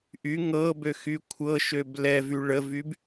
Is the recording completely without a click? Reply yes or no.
yes